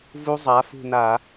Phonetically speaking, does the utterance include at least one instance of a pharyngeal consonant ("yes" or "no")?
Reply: no